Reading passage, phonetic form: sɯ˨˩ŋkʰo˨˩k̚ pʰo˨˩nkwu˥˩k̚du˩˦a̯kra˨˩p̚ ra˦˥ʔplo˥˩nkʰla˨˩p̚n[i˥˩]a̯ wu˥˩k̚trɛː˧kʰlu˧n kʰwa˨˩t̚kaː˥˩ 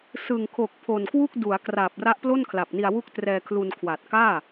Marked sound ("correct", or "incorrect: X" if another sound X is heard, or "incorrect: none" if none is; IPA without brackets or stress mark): incorrect: i˧